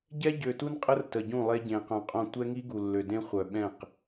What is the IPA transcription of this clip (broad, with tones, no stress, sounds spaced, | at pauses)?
ɟ ɛ˦ ɟ ø˨ t u˦ n qʼ ə˦ r t ə˨ ɟ ũ˦˨ lˠ e˦ ɟ ẽ˨ q œ̃˨ qʼ õ˦˨ tʷ ɛ˦ ŋ i˦ ɡ u˨ lː ø˨ d ẽ˦ χʷ œ˨ ɓ ɛ̃˦˨ q